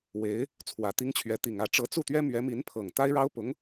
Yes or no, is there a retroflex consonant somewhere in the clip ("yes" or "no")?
yes